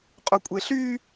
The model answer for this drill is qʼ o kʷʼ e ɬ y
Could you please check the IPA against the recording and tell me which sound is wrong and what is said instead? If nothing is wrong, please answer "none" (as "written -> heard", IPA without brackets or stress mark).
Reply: none